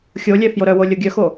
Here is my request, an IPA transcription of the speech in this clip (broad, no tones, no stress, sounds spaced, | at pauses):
xʲ o lʲ ɛ f j o ɾ œ w o lʲ o ɡʲ œ x o